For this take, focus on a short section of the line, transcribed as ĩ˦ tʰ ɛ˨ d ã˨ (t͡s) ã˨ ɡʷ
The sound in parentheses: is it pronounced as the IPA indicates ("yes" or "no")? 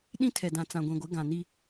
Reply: yes